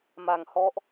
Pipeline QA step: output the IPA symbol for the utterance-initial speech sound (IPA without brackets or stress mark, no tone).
m